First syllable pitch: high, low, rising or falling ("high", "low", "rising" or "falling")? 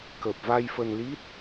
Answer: low